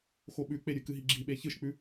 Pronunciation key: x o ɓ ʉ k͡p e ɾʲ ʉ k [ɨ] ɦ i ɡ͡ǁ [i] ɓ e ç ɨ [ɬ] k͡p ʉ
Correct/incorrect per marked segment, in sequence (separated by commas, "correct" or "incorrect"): correct, correct, incorrect